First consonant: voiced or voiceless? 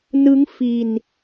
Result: voiced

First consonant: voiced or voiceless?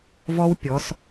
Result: voiced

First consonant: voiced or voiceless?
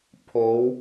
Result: voiceless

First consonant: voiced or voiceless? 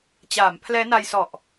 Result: voiceless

